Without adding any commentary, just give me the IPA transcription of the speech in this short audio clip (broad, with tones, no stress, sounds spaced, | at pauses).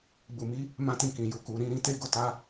ɡ͡b u˨ m i˨˦ | m ã˦ t ĩ˦˨ k ĩ˨ j u˨ k u˨ ɾ ĩ˧ ɾ ĩ˧ t e˦ ɡ o˦ t a˦